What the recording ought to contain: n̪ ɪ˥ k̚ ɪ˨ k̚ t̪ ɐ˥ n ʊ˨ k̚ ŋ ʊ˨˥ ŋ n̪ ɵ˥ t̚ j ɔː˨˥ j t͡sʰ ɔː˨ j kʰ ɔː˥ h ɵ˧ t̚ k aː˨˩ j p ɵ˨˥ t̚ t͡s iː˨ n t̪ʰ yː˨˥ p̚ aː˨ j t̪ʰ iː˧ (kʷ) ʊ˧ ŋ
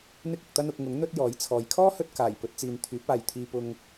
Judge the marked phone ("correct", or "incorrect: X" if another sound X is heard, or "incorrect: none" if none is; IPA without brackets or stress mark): incorrect: p